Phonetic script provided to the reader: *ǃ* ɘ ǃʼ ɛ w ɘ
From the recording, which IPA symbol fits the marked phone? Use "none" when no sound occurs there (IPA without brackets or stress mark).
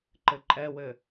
ǃ